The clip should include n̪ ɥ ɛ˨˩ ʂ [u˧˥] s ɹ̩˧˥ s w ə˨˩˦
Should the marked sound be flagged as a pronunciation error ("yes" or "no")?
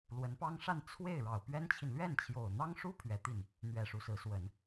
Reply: no